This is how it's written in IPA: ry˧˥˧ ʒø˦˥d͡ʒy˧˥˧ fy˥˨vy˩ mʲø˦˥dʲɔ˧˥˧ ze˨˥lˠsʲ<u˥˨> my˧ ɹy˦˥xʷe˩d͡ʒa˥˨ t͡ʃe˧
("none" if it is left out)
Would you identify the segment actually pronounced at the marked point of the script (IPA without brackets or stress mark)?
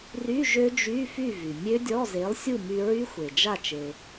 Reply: u˥˨